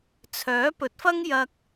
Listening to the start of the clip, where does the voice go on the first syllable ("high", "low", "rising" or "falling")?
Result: rising